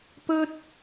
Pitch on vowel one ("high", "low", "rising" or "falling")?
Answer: high